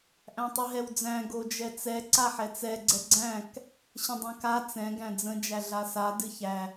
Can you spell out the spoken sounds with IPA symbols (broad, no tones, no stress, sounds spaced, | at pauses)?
ʔ æ̃ tˤ ɨ ɦ ɛ w d͡z æ̃ ɡ o d͡ʒ ɛ t͡s ɛ ǀ a ħ ɛ t͡s ɛ ɡ͡ǀ ɛ ɡ͡ǀ æ̃ k | ɕ ə̃ dˤ ɛ̃ k a t͡s ɛ̃ ɡ æ̃ d͡z ə̃ d͡ʒ æ ɮ a s a d ɨ ç æ